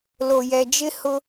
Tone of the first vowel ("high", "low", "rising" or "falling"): low